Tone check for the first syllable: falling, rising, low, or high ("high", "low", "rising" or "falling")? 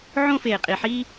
high